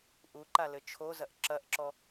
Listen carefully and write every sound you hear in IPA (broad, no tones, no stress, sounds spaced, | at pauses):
ʔ u ǃ a l ɘ t͡ʃʰ o z ɐ ʔ ǁ ɐ ʔ ǁ ɔ